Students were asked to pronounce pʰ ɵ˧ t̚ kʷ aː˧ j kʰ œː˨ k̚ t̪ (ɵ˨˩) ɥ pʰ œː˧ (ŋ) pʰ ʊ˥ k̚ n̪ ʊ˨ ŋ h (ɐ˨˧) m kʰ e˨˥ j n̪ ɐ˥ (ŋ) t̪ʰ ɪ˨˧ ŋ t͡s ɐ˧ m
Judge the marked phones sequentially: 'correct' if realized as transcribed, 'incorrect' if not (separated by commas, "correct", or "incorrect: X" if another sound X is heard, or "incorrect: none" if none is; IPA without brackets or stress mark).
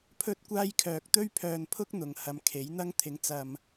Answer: incorrect: ɵ˥, incorrect: n, correct, correct